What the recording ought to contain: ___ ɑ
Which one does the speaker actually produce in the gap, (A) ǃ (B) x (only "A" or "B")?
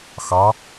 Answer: B